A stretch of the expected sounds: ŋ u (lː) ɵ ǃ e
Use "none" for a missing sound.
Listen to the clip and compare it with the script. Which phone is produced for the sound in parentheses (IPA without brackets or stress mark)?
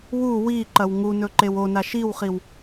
n